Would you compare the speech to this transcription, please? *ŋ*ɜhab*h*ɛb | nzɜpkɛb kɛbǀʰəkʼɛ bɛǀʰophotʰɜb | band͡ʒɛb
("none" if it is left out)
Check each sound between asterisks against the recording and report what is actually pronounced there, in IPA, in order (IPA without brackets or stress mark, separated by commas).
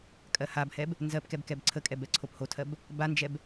kʼ, h